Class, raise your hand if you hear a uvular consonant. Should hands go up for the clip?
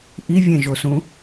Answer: no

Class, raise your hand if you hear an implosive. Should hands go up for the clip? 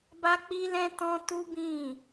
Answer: no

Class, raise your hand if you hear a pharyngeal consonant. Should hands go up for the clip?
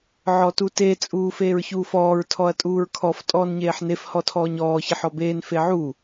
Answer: yes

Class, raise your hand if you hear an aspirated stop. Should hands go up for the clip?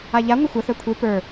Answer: yes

